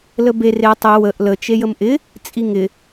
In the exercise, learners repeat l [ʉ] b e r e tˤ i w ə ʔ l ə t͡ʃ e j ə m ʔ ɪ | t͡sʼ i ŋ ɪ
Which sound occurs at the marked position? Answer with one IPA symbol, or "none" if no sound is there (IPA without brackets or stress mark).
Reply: ə